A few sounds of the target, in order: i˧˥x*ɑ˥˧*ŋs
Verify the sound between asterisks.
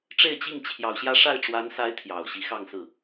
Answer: correct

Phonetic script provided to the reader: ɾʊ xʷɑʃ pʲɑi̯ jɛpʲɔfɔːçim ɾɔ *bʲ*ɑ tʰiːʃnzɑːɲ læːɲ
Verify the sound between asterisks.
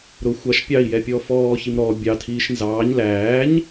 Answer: correct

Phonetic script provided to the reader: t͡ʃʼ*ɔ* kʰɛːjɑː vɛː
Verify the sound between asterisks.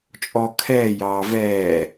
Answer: correct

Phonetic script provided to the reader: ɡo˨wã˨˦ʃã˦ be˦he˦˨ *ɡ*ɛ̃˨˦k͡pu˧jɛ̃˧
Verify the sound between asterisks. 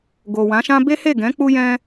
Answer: correct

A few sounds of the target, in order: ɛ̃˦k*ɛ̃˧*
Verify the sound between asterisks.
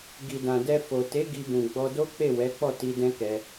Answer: incorrect: ɛ˧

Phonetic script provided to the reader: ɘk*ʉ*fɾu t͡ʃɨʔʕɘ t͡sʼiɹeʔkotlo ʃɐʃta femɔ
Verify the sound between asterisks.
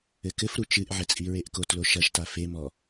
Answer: incorrect: ɘ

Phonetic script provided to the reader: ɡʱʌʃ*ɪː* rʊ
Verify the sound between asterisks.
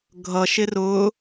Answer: incorrect: ɪ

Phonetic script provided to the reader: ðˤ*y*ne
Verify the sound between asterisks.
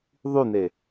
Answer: correct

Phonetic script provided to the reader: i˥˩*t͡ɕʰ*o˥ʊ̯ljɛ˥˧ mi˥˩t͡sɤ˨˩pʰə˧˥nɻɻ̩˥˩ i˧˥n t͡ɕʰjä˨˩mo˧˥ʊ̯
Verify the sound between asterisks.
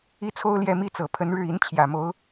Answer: incorrect: t͡sʰ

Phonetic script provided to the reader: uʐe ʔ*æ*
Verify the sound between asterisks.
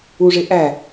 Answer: correct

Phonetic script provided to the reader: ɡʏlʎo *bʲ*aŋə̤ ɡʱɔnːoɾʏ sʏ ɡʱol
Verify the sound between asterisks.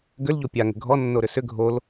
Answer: incorrect: pʲ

